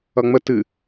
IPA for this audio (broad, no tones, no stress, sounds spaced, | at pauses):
ʌ ŋ͡m ə t ɨ